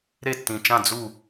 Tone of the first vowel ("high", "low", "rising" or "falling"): falling